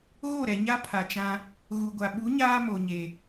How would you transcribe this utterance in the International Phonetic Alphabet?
ɣ o˦˨ ɾ ɛ˨ ɲ a˦ pʰ a˨ t͡ʃ ã˦ | ɣ u˨ ɡʷ a˨ ɓ u˨˦ ɲ aː˦ m o˨ ɲ eː˨

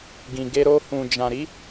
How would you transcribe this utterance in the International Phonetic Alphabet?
ɡ ĩ˨ ɡ e˧ ɾ o˧ h ũ˨ d͡ʒ ã˨ ɾ i˨˦

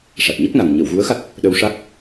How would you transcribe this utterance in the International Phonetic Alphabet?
ʂ a˨˩ t̚ ɲ ə˦˥ k̚ n a˨˩ ŋ ɲ ə˨˩˨ w ɣ u˧˥ ə̯ x a˦˥ t̚ | ɗ ə˧ w ʂ a˦˥ k̚

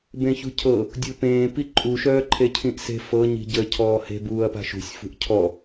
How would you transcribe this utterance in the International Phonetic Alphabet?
b ẽ ç ṳ cʰ ɤ | dʲ u p ẽː p i ǃʼ u ʃ œː ǃʰ e cʰ ĩ ʔ s e̤ f ɤ ɲ i̤ ɟ ə cʰ ɔː h e̤ b uː ɐ̯ p a̤ ʃ ṳ sʲ f ṳ ʔ cʰ ɔ

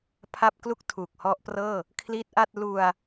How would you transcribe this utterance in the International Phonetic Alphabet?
pʰ a˥˩ p̚ k l u˥˩ k̚ tʰ uː˨˩ k̚ h ɔ˦˥ ʔ p r ɤː˥˩ | kʰ l i˦˥ t̚ ʔ a˥˩ t̚ l u˧ a̯

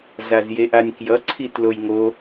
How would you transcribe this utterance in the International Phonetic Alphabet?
z a z j e ʔ a nʲ k j ʌ ǀʰ i t l o j ŋ o

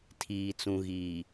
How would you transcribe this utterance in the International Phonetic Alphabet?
tʰ iː˨ t͡s ũ˨ ɣ iː˨

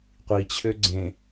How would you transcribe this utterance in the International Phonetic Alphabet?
qʷ i t͡ɕʰ ø ɡ͡ǀ ẽ

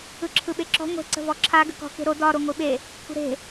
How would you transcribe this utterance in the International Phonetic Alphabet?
ɯ ǁʰ ɯ ɓ e ǁ ɔ̤ ŋʷ e̤ ǀ ə̤ v ɔ ǁʰ a ɡ ə̤ k ɔ̤ k e̤ ɾ o d ɒ ɾ o ŋʷ i ɓ e | kʷʰ ə̤ ɾ e̤

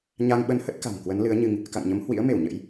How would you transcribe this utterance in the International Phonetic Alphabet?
ɲ a˧ ŋ ɓ ə˧ n h ə˦˥ t̚ k a̤˨˩ ŋ k w ə˨˦ n l ɨ˨˦ ə̯ ɲ ɨ˧ ŋ | k a̰˧˨ ŋ ɲ ə˨˦ m h w ḭ˧˥ ə̯ m e˧˩ w ɲ ə̰˧˥ j

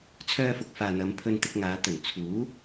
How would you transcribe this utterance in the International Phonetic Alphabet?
t͡sʰ œː˧ f ʊ˨ k̚ f aː˨ n̪ ɐ˨˧ m pʰ ɵ˧ n t̪ ɪ˧ k̚ ŋ aː˨˧ t̪ ɵ˨˩ n t͡sʰ uː˨˥

